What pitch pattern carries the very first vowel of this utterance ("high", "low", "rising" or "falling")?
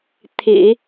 low